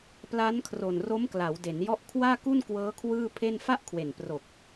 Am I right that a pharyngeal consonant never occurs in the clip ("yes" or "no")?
yes